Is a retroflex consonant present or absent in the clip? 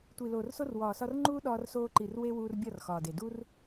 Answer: absent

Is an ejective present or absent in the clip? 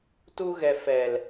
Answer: absent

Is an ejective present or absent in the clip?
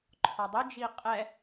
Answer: present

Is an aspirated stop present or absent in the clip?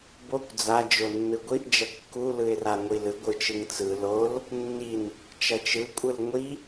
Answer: absent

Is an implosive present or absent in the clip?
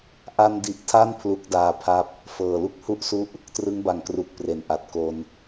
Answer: absent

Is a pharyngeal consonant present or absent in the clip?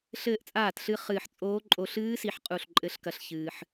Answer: present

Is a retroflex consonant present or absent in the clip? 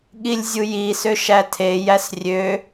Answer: absent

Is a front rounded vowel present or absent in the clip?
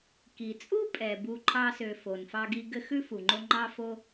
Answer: present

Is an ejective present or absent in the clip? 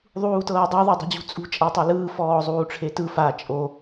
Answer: present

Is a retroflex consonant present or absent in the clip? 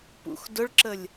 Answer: present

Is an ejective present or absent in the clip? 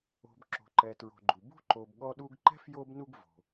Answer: absent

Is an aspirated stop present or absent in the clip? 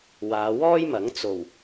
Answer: absent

